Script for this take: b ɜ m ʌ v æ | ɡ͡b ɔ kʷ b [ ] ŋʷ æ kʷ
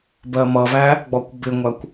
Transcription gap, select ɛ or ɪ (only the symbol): ɪ